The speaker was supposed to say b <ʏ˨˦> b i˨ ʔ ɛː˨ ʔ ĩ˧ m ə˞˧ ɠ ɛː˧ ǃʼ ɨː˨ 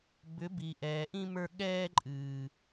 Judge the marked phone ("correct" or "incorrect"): correct